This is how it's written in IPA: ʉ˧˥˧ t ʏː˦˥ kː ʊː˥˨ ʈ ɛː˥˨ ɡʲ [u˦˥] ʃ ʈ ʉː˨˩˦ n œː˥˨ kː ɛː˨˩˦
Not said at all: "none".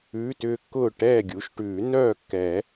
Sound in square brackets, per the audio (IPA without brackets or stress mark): u˩˥